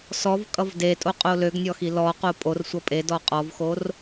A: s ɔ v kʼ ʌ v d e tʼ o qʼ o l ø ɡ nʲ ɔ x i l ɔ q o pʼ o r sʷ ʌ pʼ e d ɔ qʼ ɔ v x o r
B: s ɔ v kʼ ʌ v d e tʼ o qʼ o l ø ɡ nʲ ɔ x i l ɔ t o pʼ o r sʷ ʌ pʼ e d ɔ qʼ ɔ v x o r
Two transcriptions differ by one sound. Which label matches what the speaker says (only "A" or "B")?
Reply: A